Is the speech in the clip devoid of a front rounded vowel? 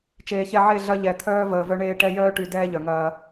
no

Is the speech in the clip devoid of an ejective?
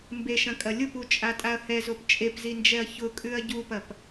no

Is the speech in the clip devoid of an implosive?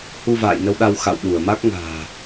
no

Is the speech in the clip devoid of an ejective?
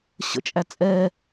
no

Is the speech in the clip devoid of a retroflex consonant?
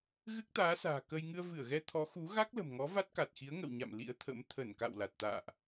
yes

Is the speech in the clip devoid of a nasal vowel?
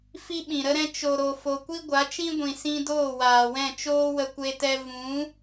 no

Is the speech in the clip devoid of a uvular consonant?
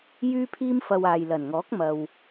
yes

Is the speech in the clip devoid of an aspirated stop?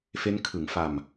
no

